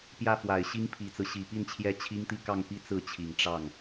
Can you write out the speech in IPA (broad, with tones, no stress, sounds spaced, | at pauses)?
p j ä˥˩ f w a˨˩ ɪ̯ ɕ i˥ ŋ pʰ i˨˩ t͡s ɹ̩˦ ɕ i˨˩ p i˥˩ n t͡ɕʰ j ɛ˥ t͡ɕʰ i˥ ŋ t̪ i˥˧ k ɑ˥˧ ŋ p i˥˧ t͡s ɹ̩˥˩ t͡ɕʰ i˨˩ ŋ ʈ͡ʂ ɑ˥˩ ŋ